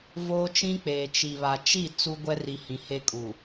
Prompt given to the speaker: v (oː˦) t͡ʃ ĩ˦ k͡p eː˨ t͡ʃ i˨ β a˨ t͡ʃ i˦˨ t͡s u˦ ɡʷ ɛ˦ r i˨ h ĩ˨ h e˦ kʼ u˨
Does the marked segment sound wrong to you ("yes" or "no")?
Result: no